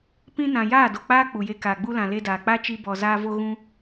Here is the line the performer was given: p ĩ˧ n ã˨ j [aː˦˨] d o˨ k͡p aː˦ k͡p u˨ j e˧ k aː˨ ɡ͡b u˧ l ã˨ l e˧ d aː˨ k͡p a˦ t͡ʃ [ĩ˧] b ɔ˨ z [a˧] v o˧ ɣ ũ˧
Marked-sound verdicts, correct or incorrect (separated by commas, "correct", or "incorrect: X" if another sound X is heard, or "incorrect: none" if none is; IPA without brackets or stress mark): correct, incorrect: i˧, incorrect: aː˧